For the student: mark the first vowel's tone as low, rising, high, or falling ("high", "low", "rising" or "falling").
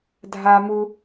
high